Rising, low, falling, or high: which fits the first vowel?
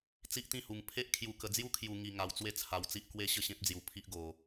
high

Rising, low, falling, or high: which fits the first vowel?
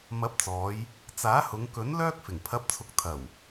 rising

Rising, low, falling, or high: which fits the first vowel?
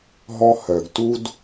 high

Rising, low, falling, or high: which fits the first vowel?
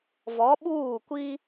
rising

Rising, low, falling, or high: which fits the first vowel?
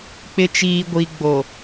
low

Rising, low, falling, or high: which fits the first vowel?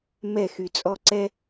falling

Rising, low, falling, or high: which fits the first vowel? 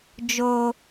low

